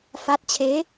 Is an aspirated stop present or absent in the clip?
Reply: present